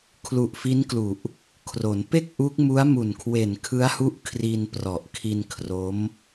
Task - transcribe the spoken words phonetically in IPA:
kʰ l u˨˩ ʔ f i˦˥ n k l u˨˩ ʔ | kʰ r o˩˦ n p e˥˩ k̚ ʔ u˦˥ k̚ m u˦˥ a̯ m u˨˩ n kʰ w e˨˩ n kʰ ɯ˦˥ a̯ h u˦˥ ʔ kʰ r i˧ n p r ɔ˨˩ ʔ kʰ i˧ n kʰ r o˦˥ m

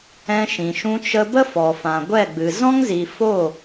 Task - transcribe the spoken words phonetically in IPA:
ɛ̃˧ ʃ ĩ˨ ʃ ũ˧ t͡ʃ ə˧ b ə˦ f ɔ˨ f ã˨ ɡʷ ɛ˦˨ ɡ͡b ɨ˨ z ɔ̃˦ ŋ z i˨ f o˦˨

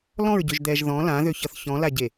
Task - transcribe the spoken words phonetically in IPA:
l ɔ̃ ɹ ɟ ø ʒ d̪ ɛː ʒ ð ɔ̃ l ã ð ø ç ʌ θ ç ɔ̃ l a ɟ e

